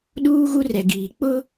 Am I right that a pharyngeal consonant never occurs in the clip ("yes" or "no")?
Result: yes